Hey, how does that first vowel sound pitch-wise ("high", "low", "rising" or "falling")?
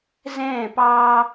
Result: falling